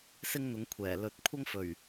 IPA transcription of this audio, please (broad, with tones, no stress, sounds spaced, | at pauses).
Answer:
s ɪ˥ ŋ n̪ ʊ˨˥ ŋ kʷʰ ɛː˨˩ l ɵ˨˥ t̚ kʷʰ ɐ˥ ŋ f ɵ˨˩ ɥ